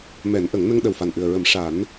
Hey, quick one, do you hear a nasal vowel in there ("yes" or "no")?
no